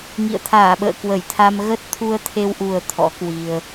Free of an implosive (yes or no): no